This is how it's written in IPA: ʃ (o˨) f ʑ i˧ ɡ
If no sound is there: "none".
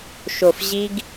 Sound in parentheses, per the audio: o˨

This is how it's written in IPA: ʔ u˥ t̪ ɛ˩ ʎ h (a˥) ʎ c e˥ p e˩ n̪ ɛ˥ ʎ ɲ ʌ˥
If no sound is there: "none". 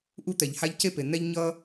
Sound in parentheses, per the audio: a˥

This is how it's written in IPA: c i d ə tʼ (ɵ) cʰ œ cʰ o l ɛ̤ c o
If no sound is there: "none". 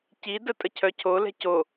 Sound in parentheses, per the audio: ə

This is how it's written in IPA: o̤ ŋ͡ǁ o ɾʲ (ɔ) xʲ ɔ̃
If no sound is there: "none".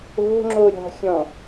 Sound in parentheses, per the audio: ɔ̤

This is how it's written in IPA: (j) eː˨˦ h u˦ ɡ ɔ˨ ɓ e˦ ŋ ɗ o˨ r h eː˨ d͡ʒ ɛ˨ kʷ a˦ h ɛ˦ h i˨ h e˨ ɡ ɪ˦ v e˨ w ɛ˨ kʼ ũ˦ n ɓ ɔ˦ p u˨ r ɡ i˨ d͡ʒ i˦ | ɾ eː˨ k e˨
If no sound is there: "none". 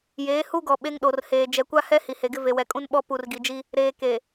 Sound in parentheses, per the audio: j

